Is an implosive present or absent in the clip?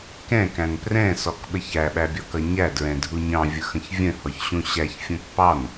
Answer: present